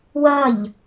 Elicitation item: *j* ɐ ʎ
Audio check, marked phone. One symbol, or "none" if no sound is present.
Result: w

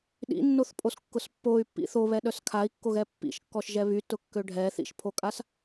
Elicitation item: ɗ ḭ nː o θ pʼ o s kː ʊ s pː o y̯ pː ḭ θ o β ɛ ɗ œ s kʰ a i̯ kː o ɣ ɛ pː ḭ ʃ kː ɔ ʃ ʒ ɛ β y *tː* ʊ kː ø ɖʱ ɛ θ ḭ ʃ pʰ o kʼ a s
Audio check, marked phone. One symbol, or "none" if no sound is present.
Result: t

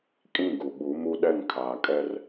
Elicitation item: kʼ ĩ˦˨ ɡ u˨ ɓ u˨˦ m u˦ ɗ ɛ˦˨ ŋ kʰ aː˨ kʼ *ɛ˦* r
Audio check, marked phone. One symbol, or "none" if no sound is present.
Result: ɛ˦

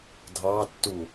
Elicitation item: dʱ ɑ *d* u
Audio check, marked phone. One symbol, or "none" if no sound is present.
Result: tː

